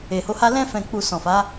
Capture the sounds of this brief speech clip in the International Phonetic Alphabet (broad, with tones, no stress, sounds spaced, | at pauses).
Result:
e˨ h o˨˦ h a˦ l ɛ̃˧ f ɛ̃˨ k͡p u˨ s ɔ̃˨ f a˨˦